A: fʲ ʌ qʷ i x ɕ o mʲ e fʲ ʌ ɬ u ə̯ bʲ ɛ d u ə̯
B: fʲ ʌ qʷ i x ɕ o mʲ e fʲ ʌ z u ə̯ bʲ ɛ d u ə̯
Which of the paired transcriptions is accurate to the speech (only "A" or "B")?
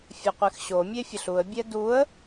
A